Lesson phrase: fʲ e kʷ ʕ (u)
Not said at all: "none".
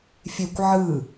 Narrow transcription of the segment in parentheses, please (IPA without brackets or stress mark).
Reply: ɯ